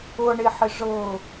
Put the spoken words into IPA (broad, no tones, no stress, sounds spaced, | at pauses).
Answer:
ɤ ɳ e ħ ɪ ʐ ɤ